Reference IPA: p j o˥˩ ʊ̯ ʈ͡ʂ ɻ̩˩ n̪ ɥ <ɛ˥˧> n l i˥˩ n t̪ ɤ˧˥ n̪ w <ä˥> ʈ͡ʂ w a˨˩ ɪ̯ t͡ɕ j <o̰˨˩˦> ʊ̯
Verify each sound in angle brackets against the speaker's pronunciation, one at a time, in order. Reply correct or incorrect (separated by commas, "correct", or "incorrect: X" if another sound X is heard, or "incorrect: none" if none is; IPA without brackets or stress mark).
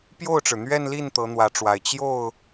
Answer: correct, incorrect: ä˧˥, incorrect: o˥˩